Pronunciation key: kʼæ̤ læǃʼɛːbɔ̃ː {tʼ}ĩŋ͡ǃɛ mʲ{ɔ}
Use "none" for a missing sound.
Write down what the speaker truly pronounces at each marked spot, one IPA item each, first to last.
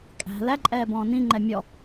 n, ɔ

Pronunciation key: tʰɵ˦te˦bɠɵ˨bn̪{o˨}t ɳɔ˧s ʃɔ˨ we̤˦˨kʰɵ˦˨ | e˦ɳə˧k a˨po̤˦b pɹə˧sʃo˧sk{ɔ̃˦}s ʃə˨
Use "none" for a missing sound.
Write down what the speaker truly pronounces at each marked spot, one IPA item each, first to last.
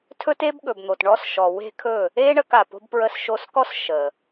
o˨, ɔ˦

